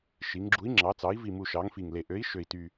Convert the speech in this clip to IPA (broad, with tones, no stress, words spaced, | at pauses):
ʃi˩˧ŋɡ͡ǁu˨˥i̯ ŋ͡ǁɑ˩˧t͡sɑ˩˧i̯vi˨˩ mu˨˩ʃɑ˩˧ŋ fi˨˩ŋle˨˩ ʔø˨˥i̯ ʃø˨˩i̯ ty˨˩